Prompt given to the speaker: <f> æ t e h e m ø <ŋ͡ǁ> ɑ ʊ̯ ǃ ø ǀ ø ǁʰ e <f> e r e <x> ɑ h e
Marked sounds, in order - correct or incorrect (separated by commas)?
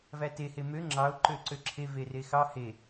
incorrect, correct, incorrect, correct